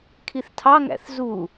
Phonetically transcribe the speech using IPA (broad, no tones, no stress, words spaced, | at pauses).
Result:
kʰiθtʰɑŋæ̰θ zu